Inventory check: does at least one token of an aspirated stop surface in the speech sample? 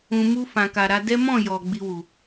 no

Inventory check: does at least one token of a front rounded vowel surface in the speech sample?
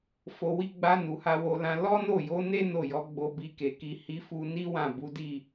no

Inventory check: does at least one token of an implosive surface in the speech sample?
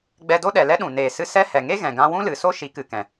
yes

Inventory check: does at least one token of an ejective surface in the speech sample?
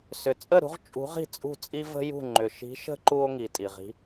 yes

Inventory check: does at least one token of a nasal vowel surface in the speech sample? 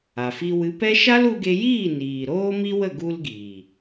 no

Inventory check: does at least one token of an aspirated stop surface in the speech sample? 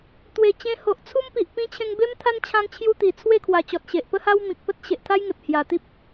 yes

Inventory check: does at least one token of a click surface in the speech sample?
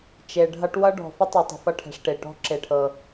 yes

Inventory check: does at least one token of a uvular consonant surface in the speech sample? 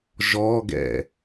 no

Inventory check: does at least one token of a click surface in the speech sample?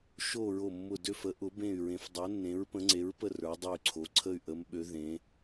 yes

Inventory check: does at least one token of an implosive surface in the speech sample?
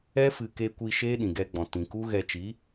yes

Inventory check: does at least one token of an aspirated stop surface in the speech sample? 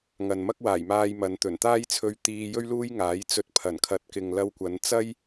yes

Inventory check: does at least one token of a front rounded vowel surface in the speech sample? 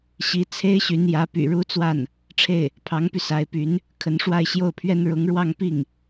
yes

